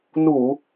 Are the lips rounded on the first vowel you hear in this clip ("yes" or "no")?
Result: yes